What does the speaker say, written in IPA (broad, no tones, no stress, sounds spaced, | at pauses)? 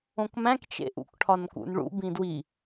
õ k m æ̃ k t͡ʃ ḛ ʔ ṵ k ʈʰ ɒ n k ṵ n ɭ ṵ b ĩ d w i